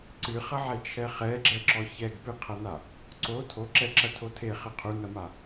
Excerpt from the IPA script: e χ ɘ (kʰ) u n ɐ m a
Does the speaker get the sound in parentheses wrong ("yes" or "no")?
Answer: yes